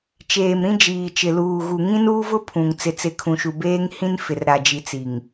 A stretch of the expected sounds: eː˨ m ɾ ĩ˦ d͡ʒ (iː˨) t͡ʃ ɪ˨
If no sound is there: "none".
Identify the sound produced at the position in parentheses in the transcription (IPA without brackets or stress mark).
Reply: iː˨